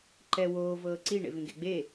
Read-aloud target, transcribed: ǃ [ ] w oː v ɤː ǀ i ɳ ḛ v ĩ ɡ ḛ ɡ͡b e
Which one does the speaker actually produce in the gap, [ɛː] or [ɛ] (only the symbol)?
ɛ